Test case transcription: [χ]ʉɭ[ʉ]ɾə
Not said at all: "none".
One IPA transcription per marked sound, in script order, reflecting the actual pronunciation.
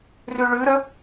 r, ʉ

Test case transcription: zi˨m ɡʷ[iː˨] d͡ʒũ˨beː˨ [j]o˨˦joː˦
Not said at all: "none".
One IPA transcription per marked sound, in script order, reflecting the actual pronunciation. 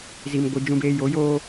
i˨, j

